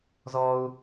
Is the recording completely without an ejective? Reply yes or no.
yes